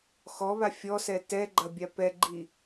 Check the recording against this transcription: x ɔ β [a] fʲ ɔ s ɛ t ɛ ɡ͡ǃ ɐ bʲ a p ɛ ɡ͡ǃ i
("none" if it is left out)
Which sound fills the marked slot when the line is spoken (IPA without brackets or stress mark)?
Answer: a